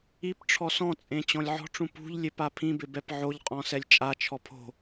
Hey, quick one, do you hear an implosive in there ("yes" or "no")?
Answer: no